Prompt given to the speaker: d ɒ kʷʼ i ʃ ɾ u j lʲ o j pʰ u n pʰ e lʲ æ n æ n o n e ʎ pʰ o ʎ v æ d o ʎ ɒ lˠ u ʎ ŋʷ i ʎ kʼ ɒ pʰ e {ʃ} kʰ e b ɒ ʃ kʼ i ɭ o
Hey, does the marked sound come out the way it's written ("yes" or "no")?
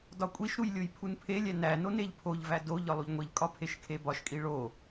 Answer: yes